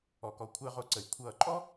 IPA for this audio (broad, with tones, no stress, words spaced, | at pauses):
ɔ˩kɔ˩kʷʰɜ˧˩˧ʁo˩ ǀə˩j kʷʰʌː˧˩˧ǃʼɔ˥